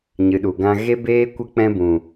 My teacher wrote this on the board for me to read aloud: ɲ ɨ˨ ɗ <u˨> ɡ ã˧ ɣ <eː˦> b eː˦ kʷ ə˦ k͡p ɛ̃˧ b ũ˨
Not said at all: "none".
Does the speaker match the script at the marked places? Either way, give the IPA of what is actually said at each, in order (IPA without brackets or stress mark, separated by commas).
u˨, e˦